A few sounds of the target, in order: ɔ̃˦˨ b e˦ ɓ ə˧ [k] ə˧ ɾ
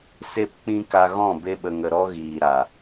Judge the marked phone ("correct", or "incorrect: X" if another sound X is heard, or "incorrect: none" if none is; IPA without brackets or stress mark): incorrect: ŋ